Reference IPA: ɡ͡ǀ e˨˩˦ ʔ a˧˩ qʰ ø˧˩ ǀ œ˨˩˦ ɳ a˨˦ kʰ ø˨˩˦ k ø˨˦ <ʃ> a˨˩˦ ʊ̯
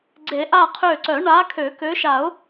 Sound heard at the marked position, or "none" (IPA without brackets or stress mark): ʃ